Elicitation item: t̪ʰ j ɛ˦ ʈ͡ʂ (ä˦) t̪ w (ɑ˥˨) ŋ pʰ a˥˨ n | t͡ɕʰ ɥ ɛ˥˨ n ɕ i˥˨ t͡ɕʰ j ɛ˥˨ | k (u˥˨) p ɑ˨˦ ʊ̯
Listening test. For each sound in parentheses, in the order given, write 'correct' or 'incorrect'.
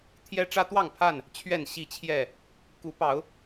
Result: correct, correct, incorrect

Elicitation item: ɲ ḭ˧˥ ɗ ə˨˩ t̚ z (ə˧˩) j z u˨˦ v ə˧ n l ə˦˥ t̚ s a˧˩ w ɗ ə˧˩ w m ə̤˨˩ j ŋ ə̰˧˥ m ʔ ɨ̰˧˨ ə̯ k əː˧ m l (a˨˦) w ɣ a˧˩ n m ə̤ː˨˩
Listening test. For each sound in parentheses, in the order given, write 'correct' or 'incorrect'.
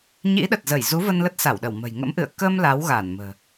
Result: correct, correct

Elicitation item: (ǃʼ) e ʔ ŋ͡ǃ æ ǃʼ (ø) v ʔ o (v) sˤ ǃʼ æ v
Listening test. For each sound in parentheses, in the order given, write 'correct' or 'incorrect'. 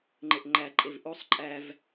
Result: incorrect, incorrect, incorrect

